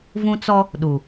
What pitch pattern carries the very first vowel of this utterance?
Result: high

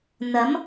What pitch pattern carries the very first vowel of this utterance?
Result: rising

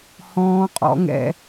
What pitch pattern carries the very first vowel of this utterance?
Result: high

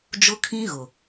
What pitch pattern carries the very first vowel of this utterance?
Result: high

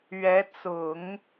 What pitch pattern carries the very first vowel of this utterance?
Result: rising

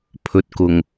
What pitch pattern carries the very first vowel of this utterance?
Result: low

